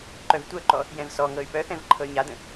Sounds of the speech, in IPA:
ǃ œ v tʷ œ ǃ ɔ | j ɛ̃ v s ɔ ŋ ɤ y̯ p œ θ ɛ̃ v ǃʰ ɤ y̯ ɲ a d ə̃

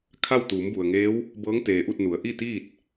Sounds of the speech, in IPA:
kʰ a˥˨ w t̪ uː˩˧ m b u˩ ə̯ ŋ eː˧˥ w | b ɤː˧˥ ŋ t̪ eː˩ ʔ u˥˨ t̚ n u˩˧ ə̯ ʔ i˥˨ t̪ iː˥˨ t̚

